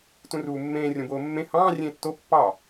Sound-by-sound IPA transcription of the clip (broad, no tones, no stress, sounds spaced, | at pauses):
t ũ r uː mː ẽː rʲ õ b oː mː ẽ h ɑ̃ː rʲ ẽː tː o pː ɑ